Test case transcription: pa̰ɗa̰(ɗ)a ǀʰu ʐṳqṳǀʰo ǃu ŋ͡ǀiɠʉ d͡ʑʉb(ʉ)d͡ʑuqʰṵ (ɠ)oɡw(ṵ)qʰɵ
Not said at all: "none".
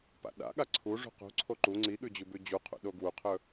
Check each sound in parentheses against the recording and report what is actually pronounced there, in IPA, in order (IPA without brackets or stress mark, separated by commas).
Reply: ɠ, ʉ, ɗ, u